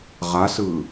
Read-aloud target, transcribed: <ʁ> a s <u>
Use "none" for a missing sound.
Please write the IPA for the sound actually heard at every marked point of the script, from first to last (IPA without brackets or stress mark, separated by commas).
ʁ, ɯ